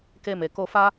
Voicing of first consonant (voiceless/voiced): voiceless